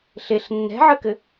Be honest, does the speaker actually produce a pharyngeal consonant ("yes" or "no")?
yes